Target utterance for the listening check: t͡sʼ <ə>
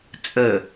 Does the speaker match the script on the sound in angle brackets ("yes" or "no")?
yes